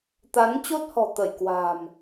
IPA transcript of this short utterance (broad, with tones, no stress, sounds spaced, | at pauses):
t̪ a˨˦ n t͡ɕ o˦˥ t̚ h ɔ̤˨˩ t̪ ə˧˩ j k w a̤˨˩ m